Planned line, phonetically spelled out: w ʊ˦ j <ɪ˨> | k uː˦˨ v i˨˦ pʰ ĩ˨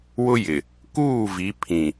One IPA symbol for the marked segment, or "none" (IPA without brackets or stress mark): ɪ˨